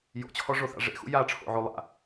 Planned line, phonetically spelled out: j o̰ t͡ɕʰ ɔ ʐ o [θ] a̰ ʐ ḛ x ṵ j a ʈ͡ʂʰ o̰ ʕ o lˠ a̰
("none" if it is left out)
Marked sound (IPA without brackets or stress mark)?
θ